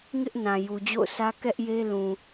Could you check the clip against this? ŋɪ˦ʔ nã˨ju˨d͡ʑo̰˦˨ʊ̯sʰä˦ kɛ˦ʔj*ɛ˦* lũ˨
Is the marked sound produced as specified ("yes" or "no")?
no